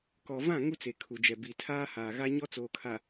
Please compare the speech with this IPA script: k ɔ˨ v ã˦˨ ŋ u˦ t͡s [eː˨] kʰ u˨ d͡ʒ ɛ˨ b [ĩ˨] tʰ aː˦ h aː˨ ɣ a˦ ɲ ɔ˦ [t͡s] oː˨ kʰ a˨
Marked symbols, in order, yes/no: no, no, yes

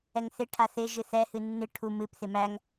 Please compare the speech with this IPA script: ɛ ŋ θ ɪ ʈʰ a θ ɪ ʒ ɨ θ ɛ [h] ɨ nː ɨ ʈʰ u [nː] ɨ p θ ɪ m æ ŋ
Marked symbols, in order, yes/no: yes, no

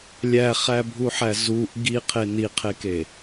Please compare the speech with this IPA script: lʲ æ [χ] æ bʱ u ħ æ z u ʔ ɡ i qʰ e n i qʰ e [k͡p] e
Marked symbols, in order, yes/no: yes, no

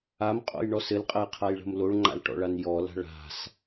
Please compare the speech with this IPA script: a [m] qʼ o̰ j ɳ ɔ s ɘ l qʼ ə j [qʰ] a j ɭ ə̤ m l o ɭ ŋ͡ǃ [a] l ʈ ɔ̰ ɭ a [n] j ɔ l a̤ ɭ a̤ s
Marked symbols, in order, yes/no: yes, yes, no, yes

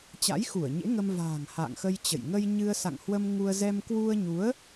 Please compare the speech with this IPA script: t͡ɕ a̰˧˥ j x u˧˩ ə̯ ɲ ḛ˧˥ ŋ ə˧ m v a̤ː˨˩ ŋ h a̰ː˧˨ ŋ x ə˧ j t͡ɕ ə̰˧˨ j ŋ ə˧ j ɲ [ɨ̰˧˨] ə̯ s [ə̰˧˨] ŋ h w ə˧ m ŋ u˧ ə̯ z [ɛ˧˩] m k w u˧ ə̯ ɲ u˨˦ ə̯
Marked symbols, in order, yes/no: no, no, no

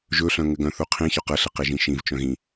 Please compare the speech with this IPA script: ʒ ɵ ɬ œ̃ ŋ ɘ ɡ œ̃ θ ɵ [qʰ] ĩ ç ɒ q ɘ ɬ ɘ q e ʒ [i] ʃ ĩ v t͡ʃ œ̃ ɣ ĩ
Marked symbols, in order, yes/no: yes, no

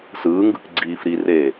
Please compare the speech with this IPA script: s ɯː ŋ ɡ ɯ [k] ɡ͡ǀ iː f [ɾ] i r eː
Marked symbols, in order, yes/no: yes, yes

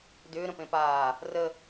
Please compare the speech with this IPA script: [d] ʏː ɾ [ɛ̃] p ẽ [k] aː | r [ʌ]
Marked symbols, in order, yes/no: yes, no, no, no

